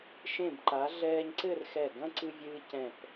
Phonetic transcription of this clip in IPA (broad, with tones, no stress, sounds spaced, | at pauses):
ʃ ẽ˧˩ b ǃ a˩˧ ɮ ɛː˧ ɲ ǀ ɘ˥˧ r x ɛ˧˩ ɡ ɐ̃˥ ǀ ɨ˧ vʲ ɨː˧ c ɛ̃˧˩ p